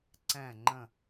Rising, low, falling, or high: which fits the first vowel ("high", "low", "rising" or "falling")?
falling